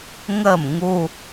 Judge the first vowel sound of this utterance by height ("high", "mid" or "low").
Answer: mid